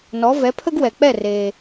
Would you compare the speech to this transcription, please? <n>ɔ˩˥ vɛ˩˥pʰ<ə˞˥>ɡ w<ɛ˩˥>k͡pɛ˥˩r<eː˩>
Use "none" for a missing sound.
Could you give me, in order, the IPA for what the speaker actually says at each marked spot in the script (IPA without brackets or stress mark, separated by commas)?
n, ə˥, ɛ˩, eː˩